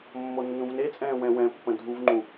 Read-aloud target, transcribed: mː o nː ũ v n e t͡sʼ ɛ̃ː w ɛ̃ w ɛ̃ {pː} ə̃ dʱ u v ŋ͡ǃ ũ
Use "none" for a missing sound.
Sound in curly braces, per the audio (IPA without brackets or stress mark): pː